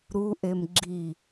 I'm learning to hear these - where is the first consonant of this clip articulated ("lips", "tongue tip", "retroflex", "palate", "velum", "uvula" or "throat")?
tongue tip